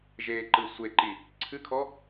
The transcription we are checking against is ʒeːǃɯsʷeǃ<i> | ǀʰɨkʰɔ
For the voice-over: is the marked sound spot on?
yes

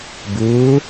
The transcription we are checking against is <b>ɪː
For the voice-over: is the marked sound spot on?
yes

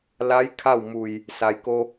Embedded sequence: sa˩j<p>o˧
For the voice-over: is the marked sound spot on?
no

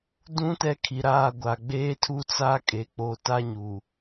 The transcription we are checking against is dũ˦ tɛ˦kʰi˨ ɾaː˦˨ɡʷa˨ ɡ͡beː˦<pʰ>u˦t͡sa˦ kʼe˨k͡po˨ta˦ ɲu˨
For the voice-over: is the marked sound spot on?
no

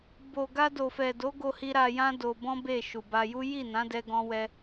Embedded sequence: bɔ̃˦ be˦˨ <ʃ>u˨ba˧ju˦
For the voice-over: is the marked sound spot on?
yes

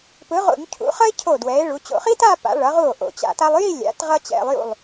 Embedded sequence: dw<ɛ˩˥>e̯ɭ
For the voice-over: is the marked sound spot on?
yes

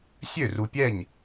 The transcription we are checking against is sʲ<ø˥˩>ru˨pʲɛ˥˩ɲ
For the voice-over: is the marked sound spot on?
yes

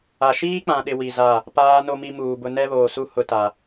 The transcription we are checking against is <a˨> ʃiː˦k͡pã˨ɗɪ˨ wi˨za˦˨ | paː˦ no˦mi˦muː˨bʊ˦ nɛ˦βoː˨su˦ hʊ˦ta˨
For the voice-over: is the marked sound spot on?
yes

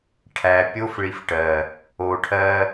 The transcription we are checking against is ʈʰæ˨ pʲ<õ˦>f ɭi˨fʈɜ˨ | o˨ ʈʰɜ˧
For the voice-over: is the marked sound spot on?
no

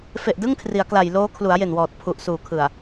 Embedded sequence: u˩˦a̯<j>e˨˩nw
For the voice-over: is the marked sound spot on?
yes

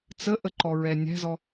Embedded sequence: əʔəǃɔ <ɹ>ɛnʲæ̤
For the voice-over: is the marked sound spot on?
yes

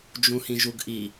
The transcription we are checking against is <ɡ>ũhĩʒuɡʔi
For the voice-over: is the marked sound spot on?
no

